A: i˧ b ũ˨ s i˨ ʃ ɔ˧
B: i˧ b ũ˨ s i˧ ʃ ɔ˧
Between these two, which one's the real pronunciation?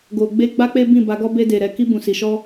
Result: A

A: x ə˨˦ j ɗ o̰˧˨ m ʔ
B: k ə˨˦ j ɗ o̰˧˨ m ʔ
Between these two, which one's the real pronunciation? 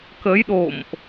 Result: B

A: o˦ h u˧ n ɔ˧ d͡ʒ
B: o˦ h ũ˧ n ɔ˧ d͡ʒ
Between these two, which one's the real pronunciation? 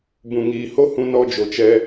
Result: B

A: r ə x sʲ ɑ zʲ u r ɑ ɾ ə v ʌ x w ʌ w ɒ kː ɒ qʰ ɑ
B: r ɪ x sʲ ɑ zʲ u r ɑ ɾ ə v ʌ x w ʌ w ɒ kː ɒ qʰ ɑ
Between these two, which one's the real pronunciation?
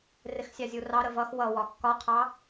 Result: B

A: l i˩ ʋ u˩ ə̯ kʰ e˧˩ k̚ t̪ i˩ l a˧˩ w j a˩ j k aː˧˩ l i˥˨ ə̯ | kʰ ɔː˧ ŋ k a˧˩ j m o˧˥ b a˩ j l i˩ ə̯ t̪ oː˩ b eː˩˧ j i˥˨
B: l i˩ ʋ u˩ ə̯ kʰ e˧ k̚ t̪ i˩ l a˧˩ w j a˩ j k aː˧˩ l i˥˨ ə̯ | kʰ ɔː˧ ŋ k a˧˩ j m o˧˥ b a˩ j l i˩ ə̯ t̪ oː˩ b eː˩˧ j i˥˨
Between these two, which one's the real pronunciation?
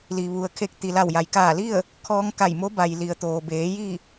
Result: B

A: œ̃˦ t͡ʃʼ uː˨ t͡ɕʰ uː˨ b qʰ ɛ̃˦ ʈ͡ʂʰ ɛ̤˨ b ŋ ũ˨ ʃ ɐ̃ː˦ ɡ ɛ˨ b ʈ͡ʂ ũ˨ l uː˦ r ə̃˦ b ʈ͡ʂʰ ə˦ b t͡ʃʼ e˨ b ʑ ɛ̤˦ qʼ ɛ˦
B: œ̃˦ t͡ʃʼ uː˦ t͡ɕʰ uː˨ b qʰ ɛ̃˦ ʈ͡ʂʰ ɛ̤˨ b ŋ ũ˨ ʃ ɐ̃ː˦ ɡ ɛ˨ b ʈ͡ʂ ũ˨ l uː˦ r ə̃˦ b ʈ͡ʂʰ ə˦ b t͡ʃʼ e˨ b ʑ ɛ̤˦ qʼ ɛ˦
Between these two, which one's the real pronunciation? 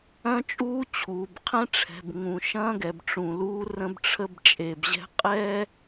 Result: B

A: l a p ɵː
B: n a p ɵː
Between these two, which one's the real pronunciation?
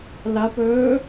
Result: A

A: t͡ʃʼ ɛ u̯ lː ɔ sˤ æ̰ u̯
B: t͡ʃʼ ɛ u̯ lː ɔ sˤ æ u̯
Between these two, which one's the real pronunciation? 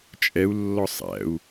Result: A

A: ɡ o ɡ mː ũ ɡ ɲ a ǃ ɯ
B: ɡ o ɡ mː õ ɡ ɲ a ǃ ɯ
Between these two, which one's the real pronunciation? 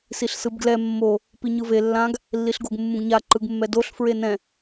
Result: A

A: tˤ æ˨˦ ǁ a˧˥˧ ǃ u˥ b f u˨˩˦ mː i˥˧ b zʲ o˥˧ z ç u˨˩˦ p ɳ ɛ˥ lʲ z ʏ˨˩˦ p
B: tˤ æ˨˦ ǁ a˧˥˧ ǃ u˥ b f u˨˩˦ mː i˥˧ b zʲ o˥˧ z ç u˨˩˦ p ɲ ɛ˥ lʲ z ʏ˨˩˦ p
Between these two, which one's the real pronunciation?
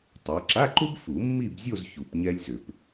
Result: B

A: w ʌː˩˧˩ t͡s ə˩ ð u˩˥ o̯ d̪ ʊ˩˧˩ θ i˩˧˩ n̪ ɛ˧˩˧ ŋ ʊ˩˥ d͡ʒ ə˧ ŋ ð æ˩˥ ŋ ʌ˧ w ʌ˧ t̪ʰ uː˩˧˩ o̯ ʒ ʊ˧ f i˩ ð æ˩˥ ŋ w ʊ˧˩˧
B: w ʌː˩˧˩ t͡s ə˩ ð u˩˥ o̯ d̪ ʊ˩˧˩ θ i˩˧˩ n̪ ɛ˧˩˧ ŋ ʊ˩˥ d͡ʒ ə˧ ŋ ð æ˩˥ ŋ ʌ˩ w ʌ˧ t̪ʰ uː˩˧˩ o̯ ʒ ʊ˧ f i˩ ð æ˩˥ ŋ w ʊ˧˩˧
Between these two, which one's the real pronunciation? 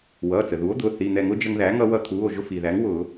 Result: A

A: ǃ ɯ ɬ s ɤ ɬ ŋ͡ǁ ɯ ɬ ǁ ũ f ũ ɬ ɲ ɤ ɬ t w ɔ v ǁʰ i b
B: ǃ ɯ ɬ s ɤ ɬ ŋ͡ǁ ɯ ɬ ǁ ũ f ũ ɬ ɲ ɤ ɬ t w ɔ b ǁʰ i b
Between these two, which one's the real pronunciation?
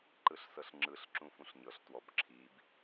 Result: B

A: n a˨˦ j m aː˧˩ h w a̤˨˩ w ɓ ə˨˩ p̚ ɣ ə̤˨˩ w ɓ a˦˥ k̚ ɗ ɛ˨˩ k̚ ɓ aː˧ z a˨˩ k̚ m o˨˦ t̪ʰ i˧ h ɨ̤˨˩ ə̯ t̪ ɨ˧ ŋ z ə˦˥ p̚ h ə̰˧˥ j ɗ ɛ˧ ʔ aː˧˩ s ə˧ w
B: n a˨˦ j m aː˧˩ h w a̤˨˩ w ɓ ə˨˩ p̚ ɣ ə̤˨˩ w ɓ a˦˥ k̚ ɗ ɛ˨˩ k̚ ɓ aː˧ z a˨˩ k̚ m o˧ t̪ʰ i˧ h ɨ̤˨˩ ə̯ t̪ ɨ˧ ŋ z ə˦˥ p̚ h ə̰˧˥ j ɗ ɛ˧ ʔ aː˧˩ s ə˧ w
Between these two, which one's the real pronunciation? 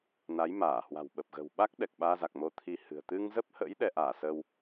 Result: B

